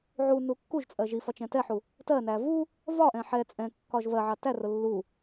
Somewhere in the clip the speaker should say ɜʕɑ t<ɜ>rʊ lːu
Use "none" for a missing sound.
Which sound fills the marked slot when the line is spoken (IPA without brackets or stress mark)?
æ